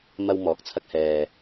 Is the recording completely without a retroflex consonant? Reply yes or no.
yes